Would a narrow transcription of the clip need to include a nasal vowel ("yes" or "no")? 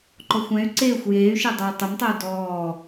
yes